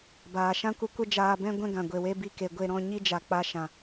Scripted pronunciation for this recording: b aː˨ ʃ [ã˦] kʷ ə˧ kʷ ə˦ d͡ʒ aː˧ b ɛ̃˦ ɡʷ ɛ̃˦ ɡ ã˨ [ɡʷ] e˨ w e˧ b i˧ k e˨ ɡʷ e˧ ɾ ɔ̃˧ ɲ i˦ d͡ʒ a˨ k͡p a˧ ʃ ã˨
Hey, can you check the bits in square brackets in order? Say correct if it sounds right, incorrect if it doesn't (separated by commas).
correct, correct